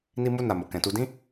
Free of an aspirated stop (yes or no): yes